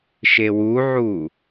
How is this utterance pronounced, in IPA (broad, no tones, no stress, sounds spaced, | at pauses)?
ʃ e w u ʕ u